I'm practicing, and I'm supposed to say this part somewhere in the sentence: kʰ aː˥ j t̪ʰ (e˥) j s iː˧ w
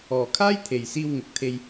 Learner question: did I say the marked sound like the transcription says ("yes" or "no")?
no